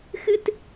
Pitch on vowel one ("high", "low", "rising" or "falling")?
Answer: high